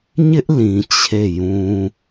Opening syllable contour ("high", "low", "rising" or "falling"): high